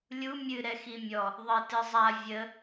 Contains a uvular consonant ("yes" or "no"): no